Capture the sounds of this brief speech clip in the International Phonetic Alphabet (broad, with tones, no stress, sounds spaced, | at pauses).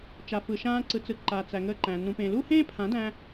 t͡ʃ a˨ f ɯ˨ ʃ ãː˧ ǀ ɯ˨ t͡s ɯ˨ ǃ a˨ t͡s æ˨ ŋ əː˧ ǃ æ̃˨ n ũ˨ p ẽ˨ l u˦ h ẽː˦ pʰ ã˨˦ d æ̃˧